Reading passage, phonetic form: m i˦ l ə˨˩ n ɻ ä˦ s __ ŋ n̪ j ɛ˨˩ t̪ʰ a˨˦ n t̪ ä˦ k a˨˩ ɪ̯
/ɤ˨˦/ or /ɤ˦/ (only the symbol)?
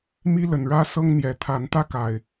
ɤ˦